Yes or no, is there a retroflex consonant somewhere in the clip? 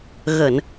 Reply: no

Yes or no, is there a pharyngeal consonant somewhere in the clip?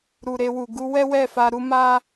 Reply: no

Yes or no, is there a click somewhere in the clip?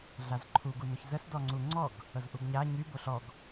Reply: yes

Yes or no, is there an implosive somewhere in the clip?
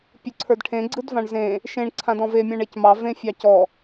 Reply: no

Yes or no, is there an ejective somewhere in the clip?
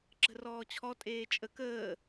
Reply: yes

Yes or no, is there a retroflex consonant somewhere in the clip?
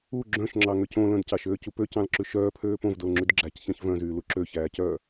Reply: no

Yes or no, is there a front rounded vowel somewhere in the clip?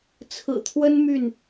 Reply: yes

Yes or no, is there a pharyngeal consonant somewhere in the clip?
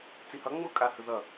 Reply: no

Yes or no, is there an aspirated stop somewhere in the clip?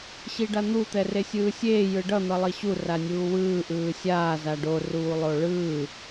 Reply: no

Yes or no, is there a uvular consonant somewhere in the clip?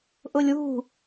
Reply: no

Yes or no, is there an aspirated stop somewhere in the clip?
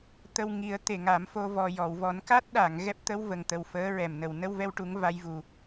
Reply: no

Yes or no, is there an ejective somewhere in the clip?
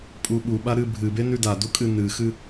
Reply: yes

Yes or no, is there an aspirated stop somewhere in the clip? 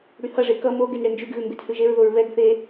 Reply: no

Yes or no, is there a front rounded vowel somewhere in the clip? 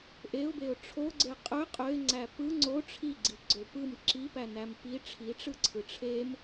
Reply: yes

